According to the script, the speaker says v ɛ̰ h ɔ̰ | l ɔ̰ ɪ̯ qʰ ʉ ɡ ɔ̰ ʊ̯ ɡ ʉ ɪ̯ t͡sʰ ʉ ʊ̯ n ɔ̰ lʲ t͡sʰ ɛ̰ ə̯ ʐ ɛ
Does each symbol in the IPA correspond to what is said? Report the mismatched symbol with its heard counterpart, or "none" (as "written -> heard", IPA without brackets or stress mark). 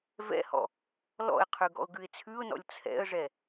none